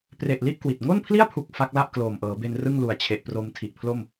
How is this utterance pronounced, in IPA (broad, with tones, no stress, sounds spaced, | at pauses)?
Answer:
p r e˨˩ ʔ l i˥˩ ʔ k w i˨˩ t̚ ŋ o˥˩ n pʰ l i˥˩ a̯ pʰ u˨˩ k̚ f a˦˥ k̚ l a˥˩ ʔ k l oː˨˩ m ʔ ɤː˩˦ b e˧ n r ɯ˥˩ ŋ l u˨˩ a̯ t͡ɕʰ e˨˩ ʔ p r o˧ m tʰ i˨˩ ʔ pʰ l o˥˩ m